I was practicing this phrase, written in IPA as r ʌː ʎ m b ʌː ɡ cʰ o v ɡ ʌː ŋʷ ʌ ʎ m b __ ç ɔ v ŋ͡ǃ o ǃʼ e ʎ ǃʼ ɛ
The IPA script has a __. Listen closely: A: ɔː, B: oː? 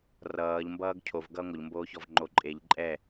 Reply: B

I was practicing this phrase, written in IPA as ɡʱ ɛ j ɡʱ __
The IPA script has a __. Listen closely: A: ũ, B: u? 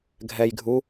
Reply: B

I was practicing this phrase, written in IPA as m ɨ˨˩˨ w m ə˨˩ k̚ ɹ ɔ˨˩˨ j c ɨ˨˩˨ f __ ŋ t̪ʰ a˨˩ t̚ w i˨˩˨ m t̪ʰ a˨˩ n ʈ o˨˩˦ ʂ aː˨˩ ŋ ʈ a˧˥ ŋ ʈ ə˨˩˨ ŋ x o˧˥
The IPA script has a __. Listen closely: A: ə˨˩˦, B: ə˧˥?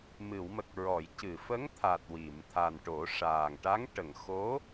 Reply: B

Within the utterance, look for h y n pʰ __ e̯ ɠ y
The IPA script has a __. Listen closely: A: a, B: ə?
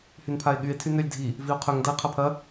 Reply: A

